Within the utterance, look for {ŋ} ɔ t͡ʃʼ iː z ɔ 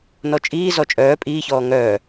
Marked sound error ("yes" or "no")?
yes